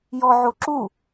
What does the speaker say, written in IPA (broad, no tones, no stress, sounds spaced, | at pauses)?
j ɔ ʕ o ǁ u